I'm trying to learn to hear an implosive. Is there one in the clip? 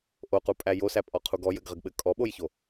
yes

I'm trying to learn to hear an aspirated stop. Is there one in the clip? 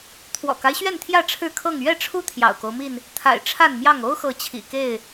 yes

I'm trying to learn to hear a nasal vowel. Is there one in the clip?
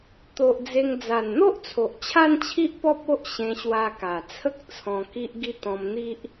yes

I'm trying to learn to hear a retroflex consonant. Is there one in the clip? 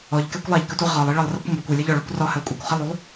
yes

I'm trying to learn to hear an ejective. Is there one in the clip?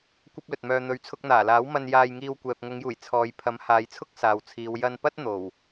no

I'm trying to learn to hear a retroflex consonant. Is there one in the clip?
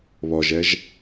no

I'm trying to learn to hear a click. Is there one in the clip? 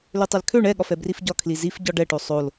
no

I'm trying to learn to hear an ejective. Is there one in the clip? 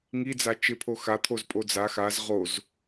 yes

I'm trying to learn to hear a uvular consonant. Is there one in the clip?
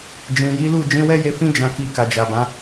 no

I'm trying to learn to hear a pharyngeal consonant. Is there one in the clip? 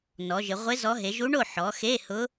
yes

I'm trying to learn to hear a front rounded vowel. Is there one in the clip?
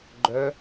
yes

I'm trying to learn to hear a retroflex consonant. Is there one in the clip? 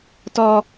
no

